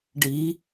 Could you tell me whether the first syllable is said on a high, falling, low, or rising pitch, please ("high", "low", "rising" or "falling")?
rising